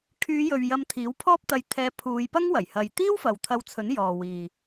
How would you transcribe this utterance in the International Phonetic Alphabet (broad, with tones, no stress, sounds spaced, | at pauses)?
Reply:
kʰ yː˨˧ j ɵ˨ ɥ j ɐ˧ m t̪ʰ iː˨˥ w pʰ ɔː˥ p̚ t̪ ɐ˧ j t̪ʰ ɛː˧ pʰ uː˨˧ j p ɐ˥ ŋ w ɐ˨˩ j h ɐ˨ j t̪ iː˥ w f ɐ˨ w t̪ʰ ɐ˧ w t͡sʰ ɵ˨˥ n j ɔː˨ w iː˨